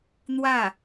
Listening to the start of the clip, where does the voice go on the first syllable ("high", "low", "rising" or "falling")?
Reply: falling